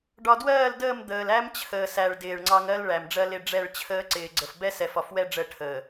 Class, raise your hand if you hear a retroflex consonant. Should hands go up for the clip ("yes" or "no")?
yes